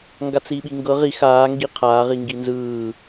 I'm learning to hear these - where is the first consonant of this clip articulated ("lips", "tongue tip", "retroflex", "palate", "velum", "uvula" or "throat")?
velum